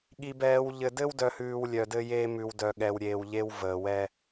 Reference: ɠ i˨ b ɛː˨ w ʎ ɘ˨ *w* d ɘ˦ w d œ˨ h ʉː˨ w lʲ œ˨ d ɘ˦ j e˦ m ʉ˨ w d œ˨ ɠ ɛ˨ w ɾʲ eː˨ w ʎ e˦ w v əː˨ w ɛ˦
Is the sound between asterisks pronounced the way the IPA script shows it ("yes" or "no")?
no